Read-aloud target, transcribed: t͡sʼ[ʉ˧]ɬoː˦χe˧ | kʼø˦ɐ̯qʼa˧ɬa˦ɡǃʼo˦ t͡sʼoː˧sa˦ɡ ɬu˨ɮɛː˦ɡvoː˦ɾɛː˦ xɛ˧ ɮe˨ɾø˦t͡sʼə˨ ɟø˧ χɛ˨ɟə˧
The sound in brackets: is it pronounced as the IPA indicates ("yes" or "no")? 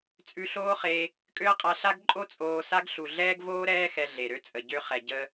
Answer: yes